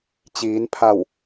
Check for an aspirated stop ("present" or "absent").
present